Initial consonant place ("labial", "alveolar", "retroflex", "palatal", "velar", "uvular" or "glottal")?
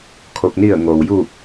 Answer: velar